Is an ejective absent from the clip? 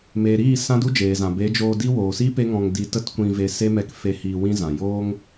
yes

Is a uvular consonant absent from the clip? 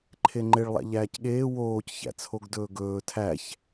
yes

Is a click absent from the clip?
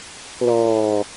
yes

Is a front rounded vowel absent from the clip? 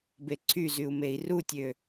no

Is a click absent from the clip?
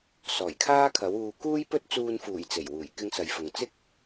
yes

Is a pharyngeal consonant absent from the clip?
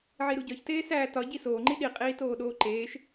no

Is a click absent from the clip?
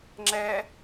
no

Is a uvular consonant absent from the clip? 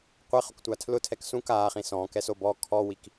no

